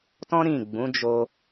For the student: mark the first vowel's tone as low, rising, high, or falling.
high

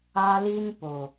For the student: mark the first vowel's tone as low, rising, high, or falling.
high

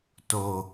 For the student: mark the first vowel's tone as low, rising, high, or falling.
low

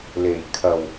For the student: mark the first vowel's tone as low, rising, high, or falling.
low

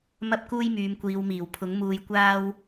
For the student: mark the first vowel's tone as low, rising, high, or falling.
high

